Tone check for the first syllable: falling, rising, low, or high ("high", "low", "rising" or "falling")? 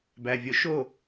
low